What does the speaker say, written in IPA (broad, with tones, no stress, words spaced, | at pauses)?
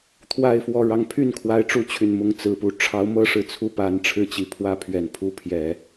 t̪ʰwa˥˧ɪ̯fwɔ˥˩ ɻɑ˧˥ŋpʰy˥˩nkʰwa˧˥ɪ̯ ʈ͡ʂu˥t͡ɕʰy˨˩nmʊ˥ŋ t͡sɹ̩˨˩pu˧˥ ʈ͡ʂʰɑ˧˥ʊ̯mɤ˥ʂɻ̩˨˩ t͡sʰu˥˩pa˧˥nʈ͡ʂʰɻ̩˥˩t͡ɕi˨˩ pʰwä˥pʰɥɛ˨˩npʰu˥ pʰjɛ˨˩˦